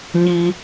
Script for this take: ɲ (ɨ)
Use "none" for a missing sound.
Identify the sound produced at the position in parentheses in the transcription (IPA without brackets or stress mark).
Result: i